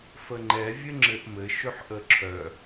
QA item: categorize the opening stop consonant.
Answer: click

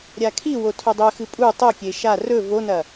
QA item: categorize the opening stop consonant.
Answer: aspirated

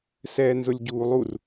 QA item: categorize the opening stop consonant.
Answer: plain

